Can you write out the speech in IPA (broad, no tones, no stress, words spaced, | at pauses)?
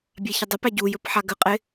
bʲaçɪdˤəpæ ɟujɵp ħaɡəqʼɪ